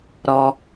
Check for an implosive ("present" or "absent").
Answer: absent